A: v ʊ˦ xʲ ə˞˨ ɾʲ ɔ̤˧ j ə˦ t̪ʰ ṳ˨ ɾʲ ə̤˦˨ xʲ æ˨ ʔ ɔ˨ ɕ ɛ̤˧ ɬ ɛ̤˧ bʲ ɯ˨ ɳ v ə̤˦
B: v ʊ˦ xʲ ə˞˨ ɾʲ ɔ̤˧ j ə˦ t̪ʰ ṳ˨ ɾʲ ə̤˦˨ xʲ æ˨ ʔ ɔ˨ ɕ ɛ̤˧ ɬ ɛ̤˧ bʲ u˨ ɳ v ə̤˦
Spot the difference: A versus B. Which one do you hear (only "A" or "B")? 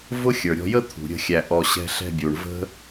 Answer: B